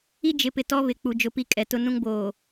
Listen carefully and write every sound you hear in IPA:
i˦ d͡ʒ ɪ˨˦ p ɪ˨ t ɔ˦ β ɪ˨ k͡p u˨ d͡ʒ ʊ˨ p i˦ kʼ ɛ˨ t ʊ˦ n ũ˦ ŋ b oː˨

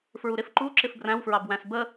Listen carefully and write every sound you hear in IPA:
f ɹ u ɾ ɪ f ǃ u ǁ ɪ f b r æ̃ w f ɹ ɑ b w æ̃ s b ə

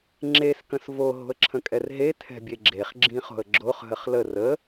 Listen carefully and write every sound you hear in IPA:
ŋ͡ǁ e s k ə̃ s v o ɦ o̤ ə̯ ǁʰ ə̃ kʼ ɛ r ɦ e tʰ ɛ̤ bʲ e ɡ͡ǁ e χ ɡ͡ǁ ĩ χ o̤ ə̯ ɡ͡ǁ o χ ɦ ə χ l ə r ə

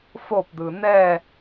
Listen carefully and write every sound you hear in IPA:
f o p d̪ ɯ n̪ ɛ

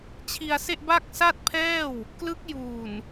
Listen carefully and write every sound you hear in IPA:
t͡ɕʰ i˧ a̯ s e˥˩ ʔ b a˥˩ k̚ s a˥˩ t̚ pʰ ɛː˥˩ w | k l ɯ˦˥ k̚ j uː˨˩ n

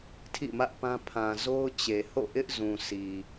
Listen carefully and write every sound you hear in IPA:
tʰ ḭ˦˨ m ä˦ ʔ p ã˦ pʰ ã˨ z o˦ ʊ̯ t͡ɕ e˨ h o̰˦˨ ʔ ɪ˦ ʔ z ũ˨ sʰ i˨

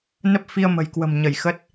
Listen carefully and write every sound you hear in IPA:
n ə˦˥ p̚ f i˧ ə̯ m ə̤˨˩ j k w ə̤˨˩ m ɲ ə˧˩ j x ə˦˥ t̚

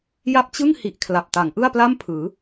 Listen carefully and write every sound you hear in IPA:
j a˦˥ p̚ t͡ɕ ɯ˥˩ ŋ h i˨˩ ʔ kʰ l a˨˩ p̚ t a˩˦ ŋ ʔ ɯ˥˩ a̯ p l a˥˩ m pʰ ɯː˩˦

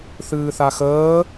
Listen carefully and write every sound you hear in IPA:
θ ɨː θ a x əː

